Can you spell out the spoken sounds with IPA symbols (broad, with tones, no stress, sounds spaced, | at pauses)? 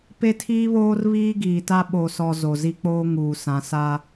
p e˦ tʰ iː˦ β oː˦ r β iː˦ ɡ iː˨ t a˦ ɓ o˨ s ɔ˨ z o˨ z i˦ k͡p oː˦ ŋ uː˨ s ã˨ s a˦